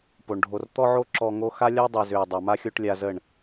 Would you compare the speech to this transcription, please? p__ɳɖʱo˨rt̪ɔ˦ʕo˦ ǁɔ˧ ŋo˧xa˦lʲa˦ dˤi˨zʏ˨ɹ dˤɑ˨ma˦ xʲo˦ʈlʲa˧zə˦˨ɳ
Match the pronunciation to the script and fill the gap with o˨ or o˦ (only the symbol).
o˨